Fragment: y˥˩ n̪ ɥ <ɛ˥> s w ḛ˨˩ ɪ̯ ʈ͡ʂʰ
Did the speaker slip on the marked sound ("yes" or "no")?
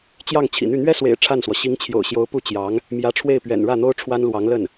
no